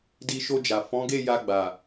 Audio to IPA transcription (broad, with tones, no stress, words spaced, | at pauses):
di˧ʃo˧d͡ʒa˨ fɔ̃˨˦ ɡe˦˨ja˧ɡ͡ba˨